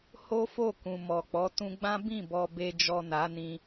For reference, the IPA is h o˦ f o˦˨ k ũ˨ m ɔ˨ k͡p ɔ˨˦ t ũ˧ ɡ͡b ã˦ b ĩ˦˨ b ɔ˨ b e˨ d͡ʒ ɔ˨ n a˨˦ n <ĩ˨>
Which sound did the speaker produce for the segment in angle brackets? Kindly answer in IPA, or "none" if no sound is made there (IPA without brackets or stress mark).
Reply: ĩ˧